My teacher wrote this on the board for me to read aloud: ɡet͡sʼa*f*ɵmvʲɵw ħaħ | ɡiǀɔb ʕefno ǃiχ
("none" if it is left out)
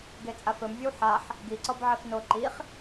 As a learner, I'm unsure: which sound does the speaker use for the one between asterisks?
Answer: f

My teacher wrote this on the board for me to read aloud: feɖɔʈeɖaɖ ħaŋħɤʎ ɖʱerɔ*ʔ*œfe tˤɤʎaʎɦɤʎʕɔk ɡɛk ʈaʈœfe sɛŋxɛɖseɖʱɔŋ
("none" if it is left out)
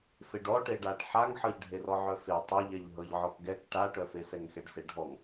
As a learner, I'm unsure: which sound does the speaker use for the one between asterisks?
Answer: ʕ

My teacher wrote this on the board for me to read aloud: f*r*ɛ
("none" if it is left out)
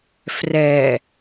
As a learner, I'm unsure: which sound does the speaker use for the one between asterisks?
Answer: r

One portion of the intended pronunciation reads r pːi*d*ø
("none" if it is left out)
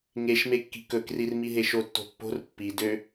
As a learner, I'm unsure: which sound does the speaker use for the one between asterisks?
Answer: d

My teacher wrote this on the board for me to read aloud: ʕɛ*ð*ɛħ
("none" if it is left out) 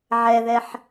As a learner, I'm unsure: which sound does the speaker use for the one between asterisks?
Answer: ð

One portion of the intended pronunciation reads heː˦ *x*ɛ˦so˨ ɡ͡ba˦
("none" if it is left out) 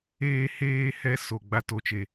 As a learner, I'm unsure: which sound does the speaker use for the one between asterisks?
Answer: h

